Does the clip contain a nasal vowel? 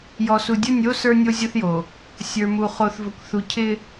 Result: no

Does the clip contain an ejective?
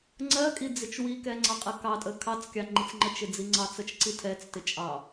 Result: yes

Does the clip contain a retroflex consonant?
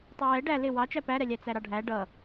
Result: yes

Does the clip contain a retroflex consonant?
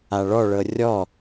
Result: yes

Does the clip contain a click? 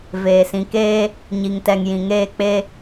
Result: no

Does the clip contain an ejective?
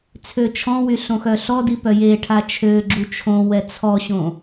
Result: no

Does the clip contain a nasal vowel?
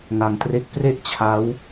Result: no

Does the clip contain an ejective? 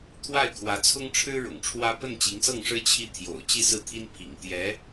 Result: no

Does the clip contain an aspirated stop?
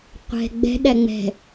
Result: no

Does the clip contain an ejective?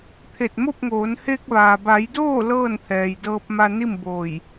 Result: no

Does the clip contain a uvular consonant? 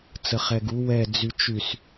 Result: yes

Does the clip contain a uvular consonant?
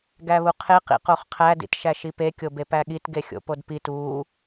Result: yes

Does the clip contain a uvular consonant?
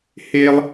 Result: no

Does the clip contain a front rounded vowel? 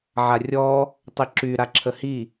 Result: yes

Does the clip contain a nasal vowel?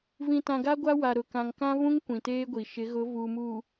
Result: yes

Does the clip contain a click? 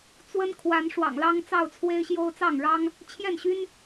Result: no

